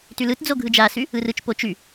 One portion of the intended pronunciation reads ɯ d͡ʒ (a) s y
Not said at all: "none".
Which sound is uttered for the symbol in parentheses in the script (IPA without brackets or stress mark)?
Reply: a